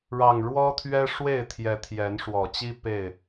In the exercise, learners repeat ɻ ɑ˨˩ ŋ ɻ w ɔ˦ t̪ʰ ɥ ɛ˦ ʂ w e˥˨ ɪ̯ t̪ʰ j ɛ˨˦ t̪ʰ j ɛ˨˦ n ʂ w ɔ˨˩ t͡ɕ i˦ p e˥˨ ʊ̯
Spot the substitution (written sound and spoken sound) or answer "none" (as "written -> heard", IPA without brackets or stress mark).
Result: ʊ̯ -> ɪ̯